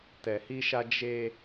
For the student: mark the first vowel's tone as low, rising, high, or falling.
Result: low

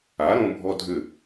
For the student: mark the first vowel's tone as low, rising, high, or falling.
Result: rising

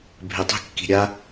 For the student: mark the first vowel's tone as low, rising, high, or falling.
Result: low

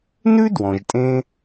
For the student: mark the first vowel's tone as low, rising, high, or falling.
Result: high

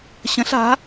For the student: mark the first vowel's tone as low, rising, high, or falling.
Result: rising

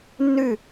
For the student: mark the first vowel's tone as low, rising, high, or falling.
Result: falling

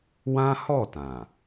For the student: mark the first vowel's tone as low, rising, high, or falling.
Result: high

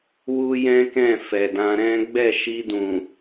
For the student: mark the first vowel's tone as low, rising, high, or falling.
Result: high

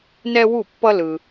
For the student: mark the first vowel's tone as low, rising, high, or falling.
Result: high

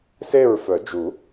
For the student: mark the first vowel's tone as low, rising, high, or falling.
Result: falling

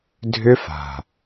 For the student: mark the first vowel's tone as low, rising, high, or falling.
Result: high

